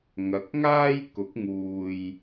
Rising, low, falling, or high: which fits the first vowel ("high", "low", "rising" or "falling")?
rising